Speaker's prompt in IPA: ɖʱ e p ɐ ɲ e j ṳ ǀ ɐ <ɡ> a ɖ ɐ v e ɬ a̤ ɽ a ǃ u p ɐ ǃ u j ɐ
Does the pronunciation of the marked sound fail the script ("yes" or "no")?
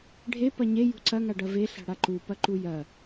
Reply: yes